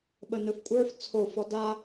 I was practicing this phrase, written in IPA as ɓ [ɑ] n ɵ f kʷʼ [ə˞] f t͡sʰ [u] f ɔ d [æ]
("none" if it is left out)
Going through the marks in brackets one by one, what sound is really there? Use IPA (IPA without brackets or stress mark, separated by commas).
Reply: ə, ə˞, o, a